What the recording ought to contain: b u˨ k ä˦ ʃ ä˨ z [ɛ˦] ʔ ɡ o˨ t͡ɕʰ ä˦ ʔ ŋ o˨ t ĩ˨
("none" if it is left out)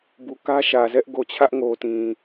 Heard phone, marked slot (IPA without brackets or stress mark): ɛ˦